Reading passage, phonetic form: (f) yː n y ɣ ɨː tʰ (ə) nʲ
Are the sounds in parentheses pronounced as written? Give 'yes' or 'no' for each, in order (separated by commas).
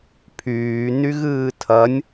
no, no